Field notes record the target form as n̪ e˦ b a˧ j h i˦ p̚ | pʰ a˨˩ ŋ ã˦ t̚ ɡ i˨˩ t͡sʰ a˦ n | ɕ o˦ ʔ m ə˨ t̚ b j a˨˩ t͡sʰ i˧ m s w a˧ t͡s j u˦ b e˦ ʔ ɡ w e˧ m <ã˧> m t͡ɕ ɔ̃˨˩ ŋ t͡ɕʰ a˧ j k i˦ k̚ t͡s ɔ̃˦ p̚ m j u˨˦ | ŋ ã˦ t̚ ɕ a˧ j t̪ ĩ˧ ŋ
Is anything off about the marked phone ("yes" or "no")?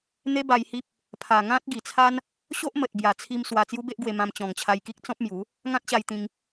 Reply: no